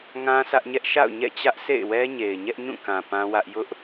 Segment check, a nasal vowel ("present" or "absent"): present